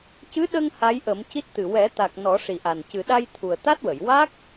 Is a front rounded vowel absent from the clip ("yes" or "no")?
yes